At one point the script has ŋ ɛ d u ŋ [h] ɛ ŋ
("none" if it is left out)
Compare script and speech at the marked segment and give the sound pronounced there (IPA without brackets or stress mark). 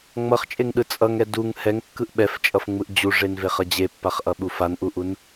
h